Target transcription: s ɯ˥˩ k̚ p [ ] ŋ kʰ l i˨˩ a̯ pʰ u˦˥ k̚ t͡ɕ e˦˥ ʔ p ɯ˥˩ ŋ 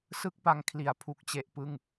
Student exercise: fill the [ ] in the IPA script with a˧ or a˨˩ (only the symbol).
a˧